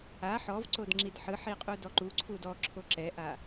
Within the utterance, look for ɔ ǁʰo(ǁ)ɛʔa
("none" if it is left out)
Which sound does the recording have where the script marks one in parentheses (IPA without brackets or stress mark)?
ǁ